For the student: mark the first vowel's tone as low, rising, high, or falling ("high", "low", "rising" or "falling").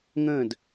falling